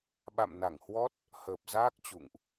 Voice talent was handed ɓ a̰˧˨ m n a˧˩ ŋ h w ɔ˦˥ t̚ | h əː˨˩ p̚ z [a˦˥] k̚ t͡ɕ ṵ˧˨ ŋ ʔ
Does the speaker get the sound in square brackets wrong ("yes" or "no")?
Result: yes